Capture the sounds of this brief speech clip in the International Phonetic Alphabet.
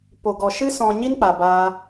po˨ɡɔ˨ʃɨ˦ sɔ̃˨ ɲi˦nk͡pa˨baː˧

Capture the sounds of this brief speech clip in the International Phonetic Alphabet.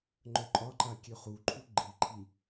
ŋ͡ǃœǃʼɒǃa kʲøχuǃʰu ɡ͡ǃiǃʰi

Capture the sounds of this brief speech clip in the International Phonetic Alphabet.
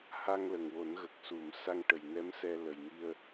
ha˧ŋ lə˨˩ŋwo˨˩˦nɣə˨˩k̚su˨˩˨m sa˧ŋʈə˨˩j nɛ˧˥msɛ˧lə˨˩j ŋi˧ə̯

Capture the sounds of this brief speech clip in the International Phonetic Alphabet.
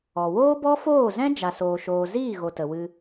ɔ˨ woː˦bɔ˦foː˦˨zɛ̃˦ d͡ʒa˨soː˨ʃoː˨ ziː˦˨ɣo˨ tə˨wɨ˧

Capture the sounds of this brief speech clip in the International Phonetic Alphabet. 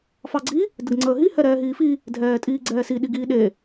fɑɡ͡ǀi | dəɡŋ͡ǀəːɦi hɛɾɛːɦiːfi | dʱɛːtʼiːɡ͡ǀɛːsi ɗiɡiːɗe

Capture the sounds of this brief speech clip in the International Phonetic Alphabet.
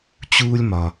t͡ɕuː˥lʲmɒ˩

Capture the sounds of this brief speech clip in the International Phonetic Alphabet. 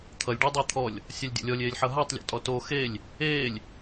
t̪ʰʌlʲ ɖe dˤɪːt̪ʰɔlʲ | sʲalʲdʲɔ̰lʲɔlʲ eːlʲħʌɦatˤ lʲɔ̰tʼɔto xelʲ | eːlʲ

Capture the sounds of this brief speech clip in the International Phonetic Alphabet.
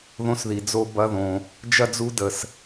ðõ˧sði˨ d͡zo˦ bɐ˦ðõ˧ | d͡ʒɐ˦d͡zu˦ də˧s

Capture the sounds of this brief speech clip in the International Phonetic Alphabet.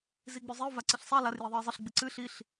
ziɡ͡bʉzˤio̯ vaǀɨɬsˤa lar jiðˤɨe̯zˤɨɬ ɡ͡bɨǀɨ ɬiɬ

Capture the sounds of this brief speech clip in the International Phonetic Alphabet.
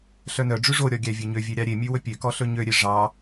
ɬœnœɖ͡ʐʉ ʐoɾʲɔ ɡʲævʲøɲøvʲø ɾʲɑɾʲemʲʉ wɵpʲøkɔ ɬɵɲøɾʲe ʐɑ

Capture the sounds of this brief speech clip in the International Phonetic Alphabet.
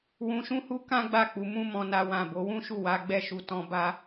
wũ˧ʃũ˦hu˦ kã˦ɡ͡ba˦˨k͡pu˧ mũ˦mɔ̃˧ na˧ wã˨ bo˨˦wũ˦ʃu˦˨ wa˨˦ɡ͡bɛ˦˨ʃu˧ tɔ̃˧ba˦

